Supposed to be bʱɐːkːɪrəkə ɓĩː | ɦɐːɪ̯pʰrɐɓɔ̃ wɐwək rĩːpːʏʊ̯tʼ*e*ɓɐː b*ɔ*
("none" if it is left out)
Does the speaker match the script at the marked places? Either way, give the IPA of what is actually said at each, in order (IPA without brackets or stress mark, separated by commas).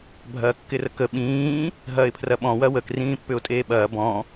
eː, ɔ̃